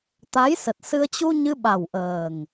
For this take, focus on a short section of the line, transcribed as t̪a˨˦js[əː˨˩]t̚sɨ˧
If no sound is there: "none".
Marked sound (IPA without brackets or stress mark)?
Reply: ə˨˩